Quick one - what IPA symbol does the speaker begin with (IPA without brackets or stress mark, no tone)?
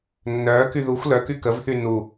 nː